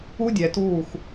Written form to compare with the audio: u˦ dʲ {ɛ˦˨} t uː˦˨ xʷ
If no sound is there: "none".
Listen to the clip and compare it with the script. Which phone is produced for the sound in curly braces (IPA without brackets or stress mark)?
ɛ˨